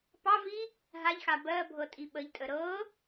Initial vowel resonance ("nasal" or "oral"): oral